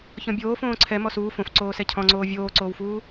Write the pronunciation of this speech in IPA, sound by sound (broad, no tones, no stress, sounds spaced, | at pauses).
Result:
ç ɔ̃ bʲ oː f õː ǀʰ ɛ m ɔ s uː f õ f ǀ oː s ɛ cʰ ɔ̃ ŋ͡ǀ oː vʲ oː ǀ oː w f uː